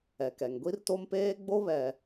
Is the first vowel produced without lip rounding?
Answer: yes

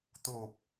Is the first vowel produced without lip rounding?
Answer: no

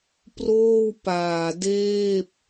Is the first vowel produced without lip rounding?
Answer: no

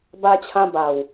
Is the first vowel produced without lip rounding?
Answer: yes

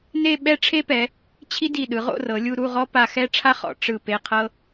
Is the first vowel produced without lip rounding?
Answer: yes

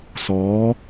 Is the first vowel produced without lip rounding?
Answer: no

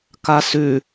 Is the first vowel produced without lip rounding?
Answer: yes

